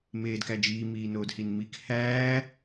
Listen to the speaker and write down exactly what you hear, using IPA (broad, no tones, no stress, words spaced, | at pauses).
meːdkæd͡ʒiː miːnoːdhinmik hæː